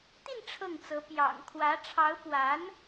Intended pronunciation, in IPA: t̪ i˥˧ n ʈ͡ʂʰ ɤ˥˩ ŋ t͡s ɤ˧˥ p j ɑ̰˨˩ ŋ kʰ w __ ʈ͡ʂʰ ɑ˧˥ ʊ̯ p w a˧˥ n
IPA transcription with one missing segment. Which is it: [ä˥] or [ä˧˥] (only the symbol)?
ä˧˥